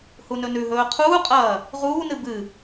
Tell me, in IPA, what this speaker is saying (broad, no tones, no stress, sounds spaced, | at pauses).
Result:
h u n ɵ n ʉ ɦ ɵː qʰ uː qʼ ɐː | ʁ uː n ɨ b ɨ